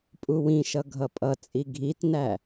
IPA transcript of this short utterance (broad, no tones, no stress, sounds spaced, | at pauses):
pʼ u w ĩ ʃ ʌ ɡʱ ʌ pʼ ʌ t͡sʼ i ɡʱ i t n æ